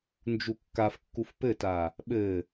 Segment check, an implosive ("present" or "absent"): present